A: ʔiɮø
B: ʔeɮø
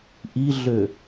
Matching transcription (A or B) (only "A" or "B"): A